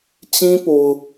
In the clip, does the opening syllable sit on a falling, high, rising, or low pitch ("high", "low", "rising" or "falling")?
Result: high